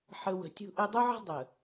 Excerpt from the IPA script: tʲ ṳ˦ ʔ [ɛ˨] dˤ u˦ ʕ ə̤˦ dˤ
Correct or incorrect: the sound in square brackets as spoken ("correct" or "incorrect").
incorrect